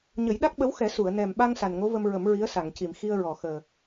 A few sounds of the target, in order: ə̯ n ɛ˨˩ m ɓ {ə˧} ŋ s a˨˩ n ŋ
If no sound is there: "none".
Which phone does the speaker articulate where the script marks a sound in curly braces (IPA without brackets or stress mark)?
a˧